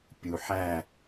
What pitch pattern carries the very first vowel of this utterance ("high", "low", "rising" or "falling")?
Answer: low